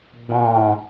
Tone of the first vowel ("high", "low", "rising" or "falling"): low